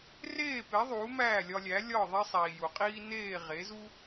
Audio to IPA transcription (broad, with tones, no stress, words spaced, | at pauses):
reː˥˩pe˩˥ ðˤuː˩˥mæː˥˩lʲɒ˧lʲæ˩˥ lʲɒ˥˩ ðˤe˥sˤiː˩ju˩qʼiː˥ neː˥˩ ʁe˩˥zu˥